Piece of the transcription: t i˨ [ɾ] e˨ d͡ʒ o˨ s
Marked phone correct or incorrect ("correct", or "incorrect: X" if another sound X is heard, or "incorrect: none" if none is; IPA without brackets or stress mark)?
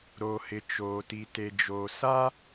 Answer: incorrect: t